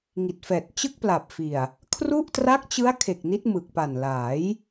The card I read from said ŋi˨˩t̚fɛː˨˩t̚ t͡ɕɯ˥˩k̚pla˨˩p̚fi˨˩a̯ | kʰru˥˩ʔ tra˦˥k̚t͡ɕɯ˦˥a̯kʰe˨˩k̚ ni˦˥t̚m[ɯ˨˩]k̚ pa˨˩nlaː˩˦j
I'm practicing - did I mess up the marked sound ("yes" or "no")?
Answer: no